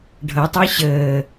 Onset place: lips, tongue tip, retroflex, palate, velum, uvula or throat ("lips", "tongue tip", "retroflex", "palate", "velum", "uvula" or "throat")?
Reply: retroflex